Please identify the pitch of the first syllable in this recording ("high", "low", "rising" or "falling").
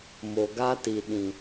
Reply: low